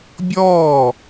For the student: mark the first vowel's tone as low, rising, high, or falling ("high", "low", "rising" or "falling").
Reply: falling